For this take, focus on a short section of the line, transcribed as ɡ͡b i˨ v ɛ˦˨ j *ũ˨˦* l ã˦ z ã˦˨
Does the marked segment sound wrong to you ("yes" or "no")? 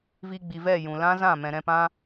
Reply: yes